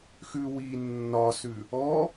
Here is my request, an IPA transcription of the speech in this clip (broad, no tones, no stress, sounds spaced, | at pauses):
x ʉ w i nː ɒ s ʉ | ɔ